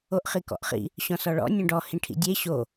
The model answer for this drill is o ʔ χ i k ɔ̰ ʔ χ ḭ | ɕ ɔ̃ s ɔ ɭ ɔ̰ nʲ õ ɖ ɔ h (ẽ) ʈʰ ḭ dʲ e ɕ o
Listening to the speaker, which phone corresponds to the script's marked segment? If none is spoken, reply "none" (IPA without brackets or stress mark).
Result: ĩ